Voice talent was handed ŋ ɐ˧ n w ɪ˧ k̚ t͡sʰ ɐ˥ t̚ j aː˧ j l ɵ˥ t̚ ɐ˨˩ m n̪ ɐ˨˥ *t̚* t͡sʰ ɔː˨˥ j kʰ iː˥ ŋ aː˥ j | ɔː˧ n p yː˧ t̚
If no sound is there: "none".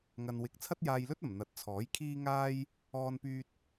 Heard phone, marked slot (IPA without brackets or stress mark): t̚